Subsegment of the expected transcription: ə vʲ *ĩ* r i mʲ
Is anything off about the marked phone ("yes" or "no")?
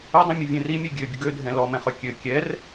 yes